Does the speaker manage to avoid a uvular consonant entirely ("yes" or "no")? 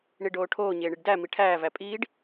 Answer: yes